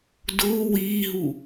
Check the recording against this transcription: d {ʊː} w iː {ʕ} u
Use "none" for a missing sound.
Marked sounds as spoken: ʊː, ɦ

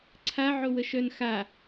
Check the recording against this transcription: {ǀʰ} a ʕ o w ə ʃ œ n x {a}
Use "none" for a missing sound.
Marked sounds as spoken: ǀʰ, a

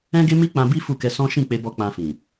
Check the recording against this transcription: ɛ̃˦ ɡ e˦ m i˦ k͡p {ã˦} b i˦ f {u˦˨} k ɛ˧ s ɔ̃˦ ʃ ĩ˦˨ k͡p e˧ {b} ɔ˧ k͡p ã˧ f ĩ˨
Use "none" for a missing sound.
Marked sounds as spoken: ã˧, u˦˨, b

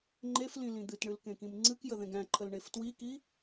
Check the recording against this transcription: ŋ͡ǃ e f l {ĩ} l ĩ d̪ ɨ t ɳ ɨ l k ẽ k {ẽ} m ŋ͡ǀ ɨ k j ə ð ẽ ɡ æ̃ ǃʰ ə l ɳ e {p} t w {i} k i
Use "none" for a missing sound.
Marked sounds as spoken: ĩ, ĩ, f, i

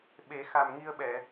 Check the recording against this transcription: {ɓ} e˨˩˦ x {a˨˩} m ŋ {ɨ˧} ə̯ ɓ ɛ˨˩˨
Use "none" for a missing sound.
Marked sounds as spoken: ɓ, a˨˩, i˧

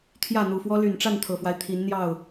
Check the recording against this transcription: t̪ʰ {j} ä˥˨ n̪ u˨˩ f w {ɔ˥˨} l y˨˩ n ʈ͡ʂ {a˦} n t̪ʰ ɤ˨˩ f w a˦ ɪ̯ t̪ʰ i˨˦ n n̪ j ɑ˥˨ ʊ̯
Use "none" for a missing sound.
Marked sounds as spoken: j, ɔ˦, a˥˨

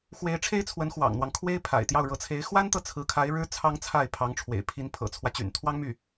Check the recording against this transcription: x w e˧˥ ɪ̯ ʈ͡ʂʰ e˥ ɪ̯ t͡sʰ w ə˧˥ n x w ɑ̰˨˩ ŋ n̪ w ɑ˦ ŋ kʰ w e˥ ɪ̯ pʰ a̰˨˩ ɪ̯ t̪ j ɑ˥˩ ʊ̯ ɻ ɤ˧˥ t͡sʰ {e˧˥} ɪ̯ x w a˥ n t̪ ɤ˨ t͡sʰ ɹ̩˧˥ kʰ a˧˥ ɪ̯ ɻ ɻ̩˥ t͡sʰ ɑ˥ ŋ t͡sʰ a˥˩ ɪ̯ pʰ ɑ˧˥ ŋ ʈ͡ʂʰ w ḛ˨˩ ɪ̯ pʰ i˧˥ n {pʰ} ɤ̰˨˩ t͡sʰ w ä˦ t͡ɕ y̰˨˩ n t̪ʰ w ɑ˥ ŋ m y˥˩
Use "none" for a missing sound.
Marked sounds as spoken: e˧˥, pʰ

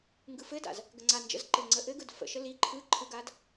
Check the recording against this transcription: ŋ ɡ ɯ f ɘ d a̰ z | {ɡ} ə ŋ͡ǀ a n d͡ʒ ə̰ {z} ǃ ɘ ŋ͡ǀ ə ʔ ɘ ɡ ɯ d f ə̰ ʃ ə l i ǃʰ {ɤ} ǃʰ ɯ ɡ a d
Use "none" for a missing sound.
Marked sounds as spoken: ɡ, z, ɯ

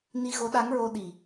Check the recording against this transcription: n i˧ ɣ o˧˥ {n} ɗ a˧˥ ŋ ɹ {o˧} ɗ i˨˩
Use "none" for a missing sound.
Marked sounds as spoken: none, o˧

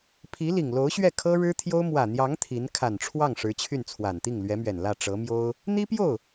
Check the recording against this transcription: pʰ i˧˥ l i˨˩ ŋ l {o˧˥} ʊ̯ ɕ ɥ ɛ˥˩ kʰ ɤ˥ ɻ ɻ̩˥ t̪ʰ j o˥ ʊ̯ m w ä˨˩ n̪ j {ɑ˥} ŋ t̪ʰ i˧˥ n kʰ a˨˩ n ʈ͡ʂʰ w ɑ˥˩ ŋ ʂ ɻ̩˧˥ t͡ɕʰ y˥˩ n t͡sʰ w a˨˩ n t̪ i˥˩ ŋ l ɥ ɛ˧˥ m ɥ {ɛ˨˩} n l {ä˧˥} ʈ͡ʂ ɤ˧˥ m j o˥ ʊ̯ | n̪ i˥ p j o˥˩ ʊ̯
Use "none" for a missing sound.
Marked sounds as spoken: o˧˥, ɑ˧˥, ɛ˨˩, ä˥˩

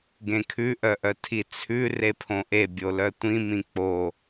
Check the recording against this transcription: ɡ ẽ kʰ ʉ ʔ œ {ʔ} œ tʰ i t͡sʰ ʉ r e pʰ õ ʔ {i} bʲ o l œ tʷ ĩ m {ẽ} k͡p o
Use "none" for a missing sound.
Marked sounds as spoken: ʔ, e, ĩ

